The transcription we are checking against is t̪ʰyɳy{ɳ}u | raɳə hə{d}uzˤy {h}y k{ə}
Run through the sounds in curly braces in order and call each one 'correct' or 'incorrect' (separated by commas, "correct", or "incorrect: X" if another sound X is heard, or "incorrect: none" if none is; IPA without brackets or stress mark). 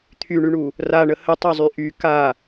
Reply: correct, incorrect: tˤ, incorrect: ʔ, incorrect: a